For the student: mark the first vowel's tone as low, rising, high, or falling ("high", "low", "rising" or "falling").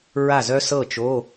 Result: falling